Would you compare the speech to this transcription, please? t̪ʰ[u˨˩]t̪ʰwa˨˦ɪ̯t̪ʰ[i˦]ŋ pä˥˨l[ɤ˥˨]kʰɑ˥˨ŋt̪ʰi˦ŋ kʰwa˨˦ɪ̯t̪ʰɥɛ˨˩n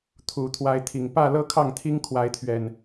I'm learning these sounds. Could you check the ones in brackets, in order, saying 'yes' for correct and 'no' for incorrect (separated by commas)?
yes, no, no